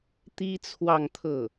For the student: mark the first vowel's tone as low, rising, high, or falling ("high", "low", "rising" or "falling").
high